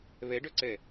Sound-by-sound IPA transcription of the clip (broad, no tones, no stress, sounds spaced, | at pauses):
β ɛ ɖ œ ǀ ɛ